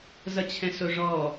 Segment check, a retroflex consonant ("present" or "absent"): present